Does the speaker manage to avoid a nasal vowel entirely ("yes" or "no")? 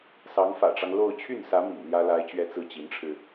yes